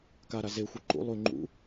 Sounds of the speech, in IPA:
kaɾa zexʷɨ ǃṵ lˠʉ ŋ͡ǃṵ

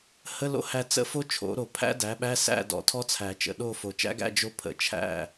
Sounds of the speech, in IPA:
hə˧˥˧lo̰˦˥hæ˦˨ t͡sə̰˦˥fo˦˥t͡ʃʰo̰˨˩˦ɾo˨˩˦ pʰæ̰˦˥dæ˩˥ɓæ˧˥˧ sæ̰˦˨dɔ̰˨˩˦ tʰɔ˦˥t͡sʰæ˨˩˦t͡ʃə̰˨˩ ɗo˦˨ fo˨˩t͡ʃæ̰˦˥ɡæ̰˧˥˧ d͡ʒo˦˥pʰə̰˨˩˦ t͡ʃʰæ̰˦˨

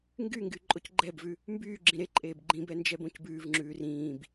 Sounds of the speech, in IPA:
ŋɡyŋɡy ǃʼocɡ͡ǃɛbvʉ | mbyːɡ͡ǁĩ ɾeǃʼeːb ɡ͡ǃĩbɛ nd͡ʒɛbõcbʉːvŋ͡ǁʉː rĩːb

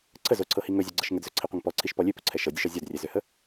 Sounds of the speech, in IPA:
ǀʰə zoǀʰɤhi ŋɵzʲoɡ͡ǀɤʃ ŋədzɵǀʰiqʷəŋ pɔǀʰiʃpɔ lʲøpɵǀʰɛ ʃɤdʲəʃɔ zʲɔdrʲɛzøhə

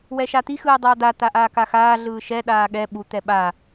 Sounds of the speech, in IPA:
wɛʃat̪i xɯːdˤʌːd̪a t̪aʔaːkaxaː ɮɯːʃɛ ɗaːɠɛ ɓu t̪ɛɓa

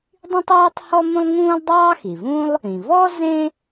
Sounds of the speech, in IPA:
dˤĩ˥tˤuː˥tˤ hɔ˥mũ˥lˠŋũː˥lˠ dˤɑː˥xi˩vũ˥lˠ | ĩ˩vɔ˥ zẽ˥

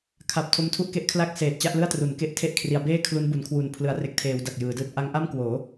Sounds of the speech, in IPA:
kʰa˨˩p̚ tʰo˦˥mtʰu˥˩ʔke˥˩ʔkʰla˥˩k̚ seː˨˩t̚t͡ɕa˥˩ʔlɯ˥˩a̯tru˩˦n ke˦˥ʔ tʰe˦˥ʔkʰri˩˦a̯beː˥˩ kʰlu˦˥nbu˩˦nkʰwu˨˩n pʰlɯ˩˦a̯re˨˩k̚tʰeː˩˦w da˨˩k̚jɯː˩˦dɯː˥˩t̚ ʔa˦˥ŋ ʔa˥˩mkwoː˩˦

